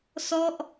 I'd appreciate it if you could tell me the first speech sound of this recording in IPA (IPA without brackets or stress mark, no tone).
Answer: s